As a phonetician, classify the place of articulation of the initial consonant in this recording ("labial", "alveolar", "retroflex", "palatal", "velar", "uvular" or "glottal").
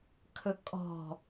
velar